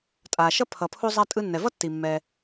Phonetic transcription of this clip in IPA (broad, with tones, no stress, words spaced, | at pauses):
tʼaː˩ʃʌ˥ pʰʌ˩pʰu˧zˤa˧ tʼɯ˧nːɛ˩vʌ˥tːi˩ mːɛ˩